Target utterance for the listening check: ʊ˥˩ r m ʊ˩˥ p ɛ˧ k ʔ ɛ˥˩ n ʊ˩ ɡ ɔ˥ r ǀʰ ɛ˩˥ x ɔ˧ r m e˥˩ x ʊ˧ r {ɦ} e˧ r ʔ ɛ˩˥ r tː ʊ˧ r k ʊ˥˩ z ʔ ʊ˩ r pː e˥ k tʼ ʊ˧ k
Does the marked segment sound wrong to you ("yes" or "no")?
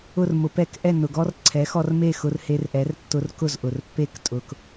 yes